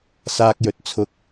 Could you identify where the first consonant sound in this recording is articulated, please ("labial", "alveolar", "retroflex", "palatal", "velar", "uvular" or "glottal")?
alveolar